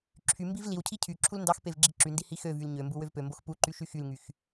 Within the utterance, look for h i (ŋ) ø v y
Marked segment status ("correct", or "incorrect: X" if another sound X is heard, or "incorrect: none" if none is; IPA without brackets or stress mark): incorrect: x